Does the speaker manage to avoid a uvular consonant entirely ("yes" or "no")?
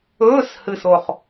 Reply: no